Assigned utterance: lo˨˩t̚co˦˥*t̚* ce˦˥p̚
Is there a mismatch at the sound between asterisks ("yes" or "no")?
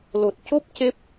yes